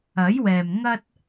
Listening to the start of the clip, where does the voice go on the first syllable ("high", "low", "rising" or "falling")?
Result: rising